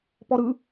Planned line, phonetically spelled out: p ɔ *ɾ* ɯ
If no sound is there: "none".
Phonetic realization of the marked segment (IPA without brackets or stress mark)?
ɾ